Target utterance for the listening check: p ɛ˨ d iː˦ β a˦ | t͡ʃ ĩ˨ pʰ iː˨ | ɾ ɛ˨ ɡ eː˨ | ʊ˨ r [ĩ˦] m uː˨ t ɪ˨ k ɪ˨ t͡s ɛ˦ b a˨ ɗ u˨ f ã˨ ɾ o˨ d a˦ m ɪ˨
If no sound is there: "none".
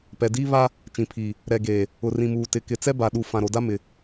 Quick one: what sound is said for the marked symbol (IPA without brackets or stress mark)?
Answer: ĩ˨